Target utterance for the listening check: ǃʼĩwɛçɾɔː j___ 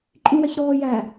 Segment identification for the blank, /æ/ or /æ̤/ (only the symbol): æ